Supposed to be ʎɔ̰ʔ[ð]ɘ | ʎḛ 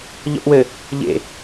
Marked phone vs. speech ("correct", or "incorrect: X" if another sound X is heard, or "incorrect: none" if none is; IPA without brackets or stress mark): incorrect: w